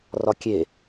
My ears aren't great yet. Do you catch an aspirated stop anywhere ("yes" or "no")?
no